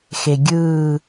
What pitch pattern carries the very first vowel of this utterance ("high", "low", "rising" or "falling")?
low